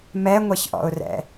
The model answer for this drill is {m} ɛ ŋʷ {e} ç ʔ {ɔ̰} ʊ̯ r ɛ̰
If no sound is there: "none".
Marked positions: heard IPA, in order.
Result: m, ɛ, ɔ̰

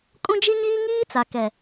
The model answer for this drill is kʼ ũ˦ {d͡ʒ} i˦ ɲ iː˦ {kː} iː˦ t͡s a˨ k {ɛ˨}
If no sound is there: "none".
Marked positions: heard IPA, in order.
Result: d͡ʒ, ŋ, ɛ˨

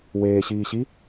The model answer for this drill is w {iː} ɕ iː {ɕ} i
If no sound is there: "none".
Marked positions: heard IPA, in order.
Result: eː, ɕ

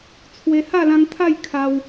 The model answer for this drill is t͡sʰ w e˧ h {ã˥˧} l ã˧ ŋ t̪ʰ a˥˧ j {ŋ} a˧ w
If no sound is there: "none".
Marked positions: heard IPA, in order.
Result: a˥˧, kʰ

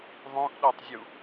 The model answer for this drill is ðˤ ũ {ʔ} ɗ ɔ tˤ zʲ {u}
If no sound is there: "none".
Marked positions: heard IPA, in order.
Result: ʔ, u

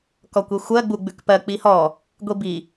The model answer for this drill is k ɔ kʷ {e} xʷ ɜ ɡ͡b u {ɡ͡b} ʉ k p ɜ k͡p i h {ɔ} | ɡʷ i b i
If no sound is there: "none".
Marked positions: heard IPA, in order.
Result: e, ɡ͡b, ɔ

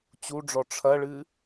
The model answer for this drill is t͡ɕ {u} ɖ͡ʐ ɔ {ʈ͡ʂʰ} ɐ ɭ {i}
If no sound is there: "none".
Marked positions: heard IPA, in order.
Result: u, ʈ͡ʂʰ, ɨ

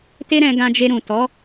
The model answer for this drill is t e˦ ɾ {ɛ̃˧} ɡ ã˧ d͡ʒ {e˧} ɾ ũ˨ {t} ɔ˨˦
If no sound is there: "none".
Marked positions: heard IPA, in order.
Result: ɛ̃˧, e˧, t

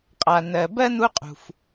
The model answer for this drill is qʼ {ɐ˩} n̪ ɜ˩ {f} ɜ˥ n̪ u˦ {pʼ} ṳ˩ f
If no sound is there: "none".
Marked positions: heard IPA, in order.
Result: a˩, b, qʼ

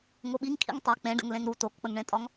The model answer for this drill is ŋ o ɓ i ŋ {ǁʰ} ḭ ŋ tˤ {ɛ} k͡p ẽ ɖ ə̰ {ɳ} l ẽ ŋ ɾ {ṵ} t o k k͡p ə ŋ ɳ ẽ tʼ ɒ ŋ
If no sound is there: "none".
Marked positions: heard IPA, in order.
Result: kʰ, ɛ, ŋ, u

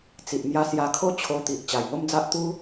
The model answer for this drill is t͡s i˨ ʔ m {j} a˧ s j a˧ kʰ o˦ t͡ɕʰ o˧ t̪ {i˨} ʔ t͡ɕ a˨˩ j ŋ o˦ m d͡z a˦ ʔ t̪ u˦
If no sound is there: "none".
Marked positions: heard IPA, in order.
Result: j, i˨

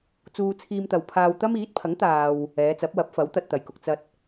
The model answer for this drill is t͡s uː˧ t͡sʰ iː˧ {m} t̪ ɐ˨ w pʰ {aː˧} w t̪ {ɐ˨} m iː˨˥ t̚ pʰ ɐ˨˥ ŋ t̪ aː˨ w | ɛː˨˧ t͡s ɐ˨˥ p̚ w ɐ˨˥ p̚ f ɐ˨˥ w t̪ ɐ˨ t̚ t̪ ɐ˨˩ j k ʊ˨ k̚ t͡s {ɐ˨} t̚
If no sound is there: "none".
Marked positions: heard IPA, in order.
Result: m, aː˧, ɐ˥, ɐ˨

